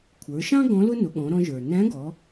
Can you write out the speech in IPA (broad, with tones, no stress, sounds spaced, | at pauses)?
kʷʰ ə˞˩˧ ʃ ɑ̃˥ ɡ ɔ̃˧˥ l ʊ˥ n ʊ˩˧ ɠ ɔ̃˩˧ ɾ ɔ̃˧ ʒ ə˞˩ n æ̃˧˥ ɡ ɔ˩˧